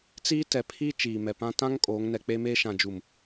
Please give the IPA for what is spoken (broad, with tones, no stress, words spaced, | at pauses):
t͡siː˦tɛ˨pʰi˦ t͡ʃiː˨mɛ˨pã˦ tã˦ŋ kʼoː˨˦ŋnɛ˨k͡peː˦meː˦ ʃã˨d͡ʒu˨m